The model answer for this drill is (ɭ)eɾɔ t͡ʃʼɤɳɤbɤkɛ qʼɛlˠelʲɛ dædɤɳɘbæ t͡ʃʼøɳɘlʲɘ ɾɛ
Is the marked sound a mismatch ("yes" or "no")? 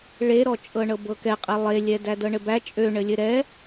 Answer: no